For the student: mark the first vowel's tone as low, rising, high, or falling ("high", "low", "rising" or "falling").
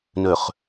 low